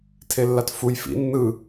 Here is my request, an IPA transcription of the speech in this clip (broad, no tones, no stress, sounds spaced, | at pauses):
tʰ e lː a t f u j f ḭ nː ɯ